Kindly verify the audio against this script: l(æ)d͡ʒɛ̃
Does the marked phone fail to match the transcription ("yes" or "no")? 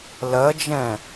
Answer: yes